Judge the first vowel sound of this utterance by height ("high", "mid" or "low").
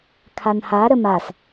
low